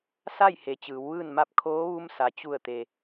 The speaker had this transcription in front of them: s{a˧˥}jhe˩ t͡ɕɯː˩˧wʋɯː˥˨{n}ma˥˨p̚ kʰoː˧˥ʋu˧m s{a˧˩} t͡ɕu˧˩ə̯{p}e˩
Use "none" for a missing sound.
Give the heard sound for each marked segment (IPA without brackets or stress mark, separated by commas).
a˥˨, n, a˩, t̪